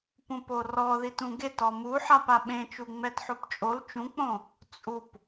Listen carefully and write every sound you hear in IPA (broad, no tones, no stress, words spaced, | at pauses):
pũporɔðit ũɡet ɔmuħap aɓẽ t͡ʃuŋ͡mɛtħopt͡ʃʼol t͡ʃũk͡põ | t͡sʼup